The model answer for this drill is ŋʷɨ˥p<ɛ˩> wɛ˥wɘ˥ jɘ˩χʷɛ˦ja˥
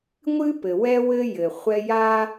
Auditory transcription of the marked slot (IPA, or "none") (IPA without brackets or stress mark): ɘ˩